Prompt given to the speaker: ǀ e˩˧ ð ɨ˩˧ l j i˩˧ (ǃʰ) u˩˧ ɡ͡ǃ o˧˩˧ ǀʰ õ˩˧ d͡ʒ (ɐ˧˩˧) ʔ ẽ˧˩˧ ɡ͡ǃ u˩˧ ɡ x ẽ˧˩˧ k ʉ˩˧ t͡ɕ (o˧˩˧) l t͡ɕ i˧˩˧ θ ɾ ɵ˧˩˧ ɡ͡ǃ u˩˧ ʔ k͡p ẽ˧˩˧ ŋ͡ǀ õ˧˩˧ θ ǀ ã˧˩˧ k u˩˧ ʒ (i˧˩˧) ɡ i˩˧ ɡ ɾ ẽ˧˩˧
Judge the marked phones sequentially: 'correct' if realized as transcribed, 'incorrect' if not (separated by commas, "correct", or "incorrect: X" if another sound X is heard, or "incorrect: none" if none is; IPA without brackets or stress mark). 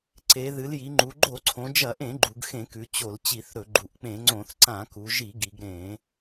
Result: incorrect: ŋ͡ǃ, correct, correct, correct